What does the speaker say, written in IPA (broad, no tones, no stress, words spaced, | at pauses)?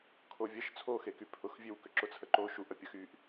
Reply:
kʰovʲəʃ t͡sʰoxeky pʰʊxvʲøw kʏǁʊt͡sʰəǃo ʃuʔəpʲə xyʔ